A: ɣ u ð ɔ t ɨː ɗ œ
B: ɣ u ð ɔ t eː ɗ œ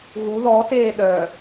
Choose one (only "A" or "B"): B